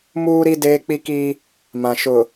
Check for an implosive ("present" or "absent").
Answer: absent